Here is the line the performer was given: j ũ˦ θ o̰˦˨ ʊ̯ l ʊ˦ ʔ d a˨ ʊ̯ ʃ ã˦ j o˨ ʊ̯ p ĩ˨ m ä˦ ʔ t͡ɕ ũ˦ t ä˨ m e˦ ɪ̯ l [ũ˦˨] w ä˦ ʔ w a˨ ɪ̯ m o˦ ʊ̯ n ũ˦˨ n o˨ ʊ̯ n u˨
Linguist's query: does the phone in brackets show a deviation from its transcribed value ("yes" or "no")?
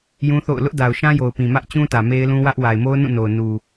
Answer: yes